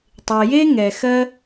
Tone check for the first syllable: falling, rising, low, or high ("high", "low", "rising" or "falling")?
low